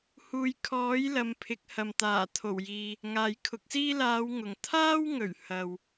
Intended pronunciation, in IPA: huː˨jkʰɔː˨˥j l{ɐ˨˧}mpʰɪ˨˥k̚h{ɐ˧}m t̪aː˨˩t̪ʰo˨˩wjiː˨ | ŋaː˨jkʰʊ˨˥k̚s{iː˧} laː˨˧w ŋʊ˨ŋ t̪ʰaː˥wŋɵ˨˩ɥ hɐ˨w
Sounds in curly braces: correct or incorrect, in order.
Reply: correct, incorrect, incorrect

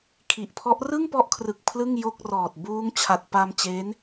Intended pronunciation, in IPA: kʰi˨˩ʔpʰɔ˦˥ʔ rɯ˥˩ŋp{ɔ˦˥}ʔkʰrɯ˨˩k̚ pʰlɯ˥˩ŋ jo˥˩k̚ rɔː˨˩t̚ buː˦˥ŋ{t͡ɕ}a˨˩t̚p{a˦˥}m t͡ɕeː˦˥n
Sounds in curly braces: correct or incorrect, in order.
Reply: correct, incorrect, incorrect

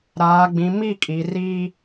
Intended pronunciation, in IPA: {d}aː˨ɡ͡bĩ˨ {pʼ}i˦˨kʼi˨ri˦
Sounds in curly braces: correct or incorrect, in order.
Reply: incorrect, incorrect

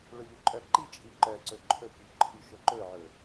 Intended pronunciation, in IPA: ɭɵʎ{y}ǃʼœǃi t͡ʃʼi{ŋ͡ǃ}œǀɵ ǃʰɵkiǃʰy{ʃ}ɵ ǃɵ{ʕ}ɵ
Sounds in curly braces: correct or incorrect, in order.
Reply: incorrect, incorrect, correct, correct

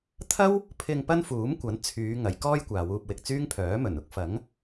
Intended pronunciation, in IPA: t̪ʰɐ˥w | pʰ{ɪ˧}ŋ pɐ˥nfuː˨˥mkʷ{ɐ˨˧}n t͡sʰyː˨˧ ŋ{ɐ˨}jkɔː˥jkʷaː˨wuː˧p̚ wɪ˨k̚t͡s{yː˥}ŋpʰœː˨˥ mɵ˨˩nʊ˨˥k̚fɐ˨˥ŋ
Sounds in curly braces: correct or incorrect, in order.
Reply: correct, incorrect, incorrect, correct

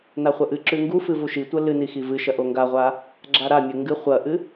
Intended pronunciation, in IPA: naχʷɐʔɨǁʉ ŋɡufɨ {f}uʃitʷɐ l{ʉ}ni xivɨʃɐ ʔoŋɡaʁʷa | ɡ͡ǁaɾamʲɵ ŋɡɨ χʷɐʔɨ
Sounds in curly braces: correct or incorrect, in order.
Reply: incorrect, incorrect

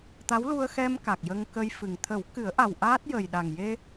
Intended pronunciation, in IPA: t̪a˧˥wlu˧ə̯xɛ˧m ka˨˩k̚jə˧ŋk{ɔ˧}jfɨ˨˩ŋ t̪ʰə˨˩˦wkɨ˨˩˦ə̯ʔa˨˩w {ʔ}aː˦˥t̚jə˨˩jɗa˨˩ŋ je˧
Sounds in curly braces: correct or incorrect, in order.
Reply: incorrect, correct

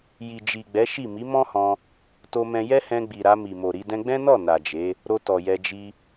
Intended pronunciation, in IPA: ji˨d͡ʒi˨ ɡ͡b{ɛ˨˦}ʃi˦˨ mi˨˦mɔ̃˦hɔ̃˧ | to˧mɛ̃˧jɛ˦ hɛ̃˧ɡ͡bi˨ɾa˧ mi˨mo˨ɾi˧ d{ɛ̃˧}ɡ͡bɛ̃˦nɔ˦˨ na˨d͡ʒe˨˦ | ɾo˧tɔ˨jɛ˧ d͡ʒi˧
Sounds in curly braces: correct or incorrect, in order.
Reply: correct, correct

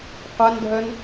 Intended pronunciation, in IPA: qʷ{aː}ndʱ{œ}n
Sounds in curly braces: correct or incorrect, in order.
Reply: incorrect, correct

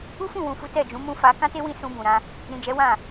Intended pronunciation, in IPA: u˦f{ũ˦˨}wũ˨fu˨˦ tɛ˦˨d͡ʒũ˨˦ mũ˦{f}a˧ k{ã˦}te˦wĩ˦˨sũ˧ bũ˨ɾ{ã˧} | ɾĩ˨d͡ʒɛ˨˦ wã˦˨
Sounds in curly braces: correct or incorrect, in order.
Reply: correct, correct, correct, correct

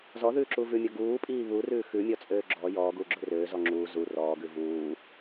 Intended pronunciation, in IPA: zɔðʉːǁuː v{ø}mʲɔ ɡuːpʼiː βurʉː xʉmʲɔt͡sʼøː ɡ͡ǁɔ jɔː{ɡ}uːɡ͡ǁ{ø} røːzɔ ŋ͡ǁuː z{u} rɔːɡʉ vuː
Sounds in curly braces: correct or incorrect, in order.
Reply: incorrect, correct, correct, correct

